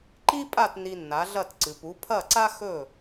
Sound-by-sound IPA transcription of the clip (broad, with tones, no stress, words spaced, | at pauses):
ǃi˥ pʼa˥˩t ni˧nːa˩˥ɮɐ˥˩t ǀɨ˩pu˩˥ pʰɐ˥˩ǀa˥ xɵ˥˩